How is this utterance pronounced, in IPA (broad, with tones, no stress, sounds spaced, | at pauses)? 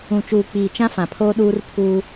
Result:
ũ˨ t͡ʃ uː˨ k͡p iː˨ t͡ʃ ã˦ f ã˨ pʰ oː˦ ɗ uː˦ r pʰ uː˦